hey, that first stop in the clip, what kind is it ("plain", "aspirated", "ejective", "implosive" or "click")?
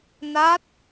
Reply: plain